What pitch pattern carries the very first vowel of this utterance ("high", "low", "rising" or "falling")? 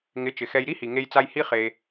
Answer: rising